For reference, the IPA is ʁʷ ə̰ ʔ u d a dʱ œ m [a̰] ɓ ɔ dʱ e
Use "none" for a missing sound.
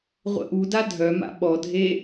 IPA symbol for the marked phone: a̰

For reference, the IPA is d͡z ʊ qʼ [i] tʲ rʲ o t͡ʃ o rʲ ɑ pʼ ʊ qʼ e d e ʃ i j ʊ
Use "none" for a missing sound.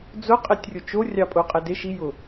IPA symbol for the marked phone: e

